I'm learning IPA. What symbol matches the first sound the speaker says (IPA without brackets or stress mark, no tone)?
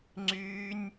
ŋ͡ǀ